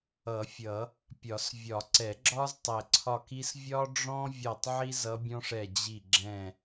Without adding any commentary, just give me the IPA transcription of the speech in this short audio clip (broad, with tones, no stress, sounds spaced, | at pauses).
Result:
ʌ˨˩˦ fʲ ʌ˨˩˦ | pʲ ɒ˨˩˦ s vʲ ɒ˨˩˦ ǀ ɛ˨˩˦ ɡ͡ǁ ɒ˥ z tˤ ɛ˨˩ ǀʰ ɒ˦˨ k i˥ s vʲ ɒ˥ ɖ͡ʐ ɔ̃˥ vʲ ɒ˦˨ tˤ ʕ i˥ z ʌ˧˥ bʲ ɔ̃˥ ʂ ɛ˦˨ d͡ʑ i˦˨ ɡ͡ǁ ɛ̃˦˨